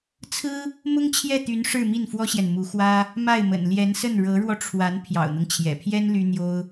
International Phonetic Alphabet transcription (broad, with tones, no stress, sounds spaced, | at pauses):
t͡sʰ ɹ̩˥ | m ʊ˥ ŋ t͡ɕʰ j ɛ˥˩ t̪ y˧˥ n ʂ ɻ̩˥˧ m i˥˩ n f w ɔ˥ ɕ j ɛ˨ n m u˧˥ x w ä˥ | m a˥˩ ɪ̯ m ə̰˨˩ n l j ɛ˧˥ n s ə˥˩ n ɻ ɤ˧˥ ɻ w ɔ˧ ʈ͡ʂʰ w a˧˥ n pʰ j ɑ̰˨˩ ʊ̯ n̪ ɤ˦ ŋ t͡ɕʰ j ɛ̰˨˩ pʰ j ɛ˥ n l y˥ n̪ j o˥ ʊ̯